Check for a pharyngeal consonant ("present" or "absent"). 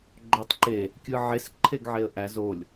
present